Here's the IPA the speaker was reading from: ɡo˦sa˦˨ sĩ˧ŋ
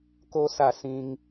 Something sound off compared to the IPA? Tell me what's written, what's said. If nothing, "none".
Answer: ɡ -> k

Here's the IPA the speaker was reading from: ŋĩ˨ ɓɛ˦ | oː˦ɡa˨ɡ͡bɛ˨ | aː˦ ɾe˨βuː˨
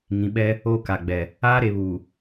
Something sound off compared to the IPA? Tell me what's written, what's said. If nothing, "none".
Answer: ɡ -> k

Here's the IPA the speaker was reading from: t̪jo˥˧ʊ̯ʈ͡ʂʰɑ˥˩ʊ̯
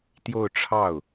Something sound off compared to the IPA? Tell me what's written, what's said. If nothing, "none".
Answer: none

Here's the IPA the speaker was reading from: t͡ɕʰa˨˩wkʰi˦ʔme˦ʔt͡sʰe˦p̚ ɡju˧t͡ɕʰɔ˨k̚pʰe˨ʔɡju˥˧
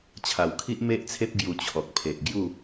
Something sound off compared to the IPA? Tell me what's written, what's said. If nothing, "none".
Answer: none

